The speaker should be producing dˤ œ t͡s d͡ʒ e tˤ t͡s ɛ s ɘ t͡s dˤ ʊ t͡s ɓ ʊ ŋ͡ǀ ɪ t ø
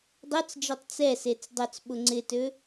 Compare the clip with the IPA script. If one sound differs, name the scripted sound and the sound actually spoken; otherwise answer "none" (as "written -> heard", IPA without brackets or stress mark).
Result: ɘ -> e